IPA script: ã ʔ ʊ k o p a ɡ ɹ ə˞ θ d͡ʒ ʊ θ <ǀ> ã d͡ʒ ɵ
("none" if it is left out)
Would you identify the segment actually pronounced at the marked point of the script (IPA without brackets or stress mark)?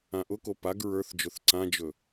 ǀ